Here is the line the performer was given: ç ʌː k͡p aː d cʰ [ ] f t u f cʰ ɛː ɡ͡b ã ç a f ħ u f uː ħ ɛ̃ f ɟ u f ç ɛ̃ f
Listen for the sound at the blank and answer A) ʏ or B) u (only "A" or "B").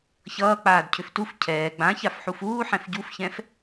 A